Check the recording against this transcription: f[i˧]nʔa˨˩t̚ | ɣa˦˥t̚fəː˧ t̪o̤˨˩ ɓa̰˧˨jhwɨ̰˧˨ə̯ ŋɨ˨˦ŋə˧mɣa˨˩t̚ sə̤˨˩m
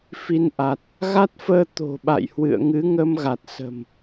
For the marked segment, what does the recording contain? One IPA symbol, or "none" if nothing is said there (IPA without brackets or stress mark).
i˧